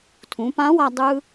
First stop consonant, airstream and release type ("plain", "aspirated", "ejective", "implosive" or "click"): aspirated